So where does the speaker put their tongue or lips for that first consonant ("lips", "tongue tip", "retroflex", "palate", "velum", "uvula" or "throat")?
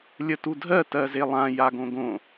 tongue tip